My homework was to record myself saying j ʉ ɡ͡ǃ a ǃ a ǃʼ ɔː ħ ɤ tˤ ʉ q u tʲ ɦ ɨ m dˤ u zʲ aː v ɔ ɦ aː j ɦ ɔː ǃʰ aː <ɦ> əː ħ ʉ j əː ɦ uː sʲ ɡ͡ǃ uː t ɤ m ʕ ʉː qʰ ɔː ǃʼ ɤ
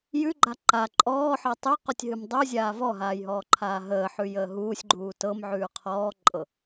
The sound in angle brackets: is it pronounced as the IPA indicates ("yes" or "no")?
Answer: yes